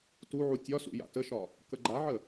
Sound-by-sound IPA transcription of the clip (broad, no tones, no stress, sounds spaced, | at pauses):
t u ʕ u tʲ ɒ s ṵ j a̰ t ə ʃ ɒ | k ə ɡ͡ǃ a ʕ ə